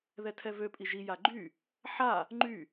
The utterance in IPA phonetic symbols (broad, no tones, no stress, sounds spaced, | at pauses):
ð ɛ tʰ ɛ v ø pʼ i ʒ i j a ɡ͡ǃ y | ħ a | ŋ͡ǃ y